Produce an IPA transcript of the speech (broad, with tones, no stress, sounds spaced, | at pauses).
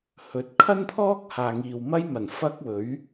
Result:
h ɵ˨˥ t̚ kʰ ɐ˥ n t̪ʰ ɔː˥ k̚ h aː˨ ŋ iː˨ w m ɐ˥ j m ɐ˨˩ n f ɐ˥ k̚ w ɵ˨˥ ɥ